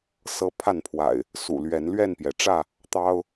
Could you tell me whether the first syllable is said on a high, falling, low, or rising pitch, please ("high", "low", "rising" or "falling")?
high